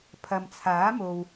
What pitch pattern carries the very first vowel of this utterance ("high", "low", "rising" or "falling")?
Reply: low